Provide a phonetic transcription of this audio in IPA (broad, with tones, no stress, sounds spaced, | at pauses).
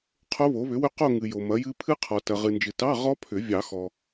qʰ o˦˥ β o˨˥ β ʏ˨˥ w ʏ˦˥ q o˥˧ ŋ ɨ˨ j o˨ m ɐ˨˥ j ɨ˦˥ pʰ ɨ˦˥ qʰ ɔ˨ t ɐ˨ ʁ ɨ˨ n d͡ʒ ɨ˨ t ɑ˧˥˧ ʁ ɔ˦˥ pʰ ʏ˨˩˦ vʲ ɑ˨˩˦ x ɔ˨